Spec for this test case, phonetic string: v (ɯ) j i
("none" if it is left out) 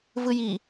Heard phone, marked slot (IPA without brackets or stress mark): ɯ